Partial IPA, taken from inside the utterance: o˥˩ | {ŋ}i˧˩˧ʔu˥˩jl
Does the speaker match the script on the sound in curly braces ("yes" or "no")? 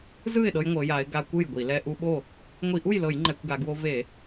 no